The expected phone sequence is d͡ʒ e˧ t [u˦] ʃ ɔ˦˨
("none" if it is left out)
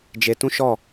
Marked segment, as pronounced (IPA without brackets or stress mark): ũ˦